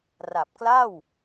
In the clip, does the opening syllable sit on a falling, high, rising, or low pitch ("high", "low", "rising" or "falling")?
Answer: low